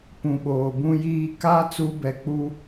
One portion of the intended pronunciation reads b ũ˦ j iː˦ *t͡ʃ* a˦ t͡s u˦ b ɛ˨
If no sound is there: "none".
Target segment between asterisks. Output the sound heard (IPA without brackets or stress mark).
k